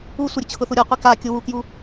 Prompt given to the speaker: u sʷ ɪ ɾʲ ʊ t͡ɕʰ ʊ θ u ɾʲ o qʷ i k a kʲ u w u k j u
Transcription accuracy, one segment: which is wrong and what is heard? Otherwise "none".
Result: none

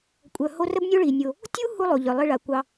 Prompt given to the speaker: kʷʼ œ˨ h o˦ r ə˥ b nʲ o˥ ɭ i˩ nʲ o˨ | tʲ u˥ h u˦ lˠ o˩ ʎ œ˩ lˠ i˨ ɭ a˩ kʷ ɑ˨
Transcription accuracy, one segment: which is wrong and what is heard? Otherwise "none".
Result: none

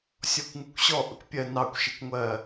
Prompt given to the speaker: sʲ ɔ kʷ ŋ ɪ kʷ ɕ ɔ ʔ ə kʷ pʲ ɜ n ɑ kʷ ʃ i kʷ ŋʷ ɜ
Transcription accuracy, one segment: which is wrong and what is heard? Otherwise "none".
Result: none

